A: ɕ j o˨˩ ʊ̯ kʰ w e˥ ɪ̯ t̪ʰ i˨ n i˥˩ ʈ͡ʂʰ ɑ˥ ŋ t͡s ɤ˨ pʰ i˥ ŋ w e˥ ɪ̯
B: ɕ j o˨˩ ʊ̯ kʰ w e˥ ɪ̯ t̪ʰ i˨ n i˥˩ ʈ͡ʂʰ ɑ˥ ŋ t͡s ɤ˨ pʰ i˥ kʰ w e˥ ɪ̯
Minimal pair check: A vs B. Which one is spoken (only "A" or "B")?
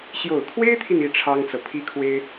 B